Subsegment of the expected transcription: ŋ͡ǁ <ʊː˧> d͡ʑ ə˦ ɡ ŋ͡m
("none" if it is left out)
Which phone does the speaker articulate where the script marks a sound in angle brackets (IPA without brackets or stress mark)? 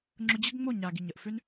ʊ˧